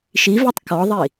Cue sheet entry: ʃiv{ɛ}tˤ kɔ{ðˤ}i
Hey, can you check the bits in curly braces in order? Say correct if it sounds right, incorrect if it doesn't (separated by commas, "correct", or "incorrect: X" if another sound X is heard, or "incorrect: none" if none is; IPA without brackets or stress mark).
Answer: correct, correct